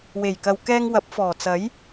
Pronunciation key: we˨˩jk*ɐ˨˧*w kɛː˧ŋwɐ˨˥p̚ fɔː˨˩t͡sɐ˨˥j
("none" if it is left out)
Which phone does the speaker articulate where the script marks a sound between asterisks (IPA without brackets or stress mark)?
ɐ˨